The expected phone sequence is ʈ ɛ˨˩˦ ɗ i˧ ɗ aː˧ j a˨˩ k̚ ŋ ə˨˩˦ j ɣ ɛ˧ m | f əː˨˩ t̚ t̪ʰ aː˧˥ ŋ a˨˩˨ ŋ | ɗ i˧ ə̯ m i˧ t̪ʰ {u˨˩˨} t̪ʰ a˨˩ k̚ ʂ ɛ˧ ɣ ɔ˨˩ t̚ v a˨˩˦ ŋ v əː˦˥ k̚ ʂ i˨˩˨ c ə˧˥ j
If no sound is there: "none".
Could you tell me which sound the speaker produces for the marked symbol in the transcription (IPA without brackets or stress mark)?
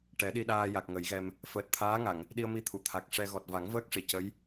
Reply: u˨˩˨